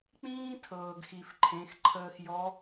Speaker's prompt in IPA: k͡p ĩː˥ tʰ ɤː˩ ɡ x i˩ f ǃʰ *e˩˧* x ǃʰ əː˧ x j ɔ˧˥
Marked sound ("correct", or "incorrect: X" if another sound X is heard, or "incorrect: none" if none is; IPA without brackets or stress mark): incorrect: ẽ˩˧